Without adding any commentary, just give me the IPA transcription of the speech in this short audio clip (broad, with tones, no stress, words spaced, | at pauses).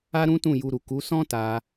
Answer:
a˦ɾũ˦tũ˦˨ ju˧ɾu˨ ku˨˦sɔ̃˦ta˧